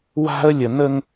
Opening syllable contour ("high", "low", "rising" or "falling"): high